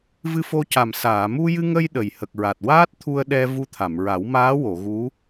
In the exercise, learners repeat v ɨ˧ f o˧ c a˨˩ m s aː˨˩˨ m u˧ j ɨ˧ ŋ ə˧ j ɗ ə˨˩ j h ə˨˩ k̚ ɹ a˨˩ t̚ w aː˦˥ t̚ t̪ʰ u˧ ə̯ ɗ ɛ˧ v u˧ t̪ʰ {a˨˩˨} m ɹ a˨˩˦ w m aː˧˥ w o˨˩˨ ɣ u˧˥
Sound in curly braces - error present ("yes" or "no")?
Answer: no